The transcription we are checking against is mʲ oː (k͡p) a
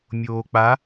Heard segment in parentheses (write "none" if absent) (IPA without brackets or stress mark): k͡p